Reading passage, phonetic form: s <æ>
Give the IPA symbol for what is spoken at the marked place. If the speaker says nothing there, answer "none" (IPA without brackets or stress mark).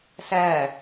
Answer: æ